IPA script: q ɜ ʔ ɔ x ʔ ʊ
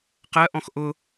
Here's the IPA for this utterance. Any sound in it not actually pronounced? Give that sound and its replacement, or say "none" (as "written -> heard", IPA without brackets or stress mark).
ɔ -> ɔ̃